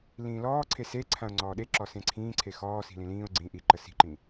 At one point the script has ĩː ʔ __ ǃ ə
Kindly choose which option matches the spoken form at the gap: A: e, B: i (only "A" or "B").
B